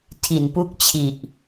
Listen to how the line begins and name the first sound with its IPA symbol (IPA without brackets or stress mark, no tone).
tʰ